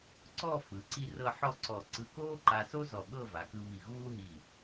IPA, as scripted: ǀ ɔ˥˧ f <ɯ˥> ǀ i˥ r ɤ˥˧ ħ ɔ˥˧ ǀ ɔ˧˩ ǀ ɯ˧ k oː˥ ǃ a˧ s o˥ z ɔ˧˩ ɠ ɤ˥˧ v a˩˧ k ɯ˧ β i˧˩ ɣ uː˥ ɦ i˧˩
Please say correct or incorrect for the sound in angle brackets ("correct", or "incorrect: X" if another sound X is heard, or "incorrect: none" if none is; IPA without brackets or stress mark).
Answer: incorrect: ɯ˩˧